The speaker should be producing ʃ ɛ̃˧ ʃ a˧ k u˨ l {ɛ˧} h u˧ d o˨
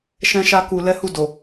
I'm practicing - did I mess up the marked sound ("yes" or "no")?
no